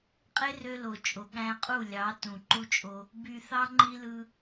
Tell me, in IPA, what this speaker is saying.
qʼ e˦ r ø˧ l o˨ t͡ʃʼ o˨ ɠ æ̃˧ qʼ u˦˨ lʲ ɑ˨˦ t ũ˨ ǃ u˦ t͡ʃʼ o˦ | b y˨ θ ɑ˧ ŋ͡ǃ i˧ l ɯ˧

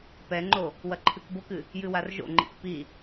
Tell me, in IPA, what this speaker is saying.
p ɛ ŋ͡ǃ o | w ɐ ǃʰ ɨ k b o k ɨ | j ɨ w a r ʒ o̰ ŋ͡ǃ ḭ k p i

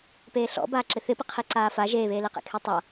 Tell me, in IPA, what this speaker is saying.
p eː ɬ ɔ̰ b aː ǁ ɪ θ ɪ p ɪ qʰ i ǀ aː f a ʒ eː β eː l e q ḛ kʰ e tˤ a

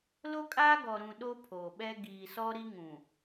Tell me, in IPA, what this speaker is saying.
l o˦ kʼ aː˦ ɡ ɔ˨ ɾ ũ˨ ɗ o˦ pʰ oː˨ ɓ ɛ˦ ɡ iː˨ s ɔ˦ ɾ i˦ ŋ ũ˨

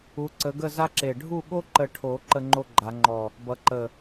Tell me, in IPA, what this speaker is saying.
u˨˦ ǀ ə˨˦ ɡ ə˥˧ z a˥ ǁ e˧˩ ɖʱ u˥˧ ɠ o˥ ǃ ə˧˩ ʈʰ o˨˩˦ ǃ ə˥ ŋ͡ǃ o˥ ɡ͡ǃ a˨˩˦ ŋ͡ǃ ɔ˧˩ | b ʌ˨˦ ǃ ə˧˩

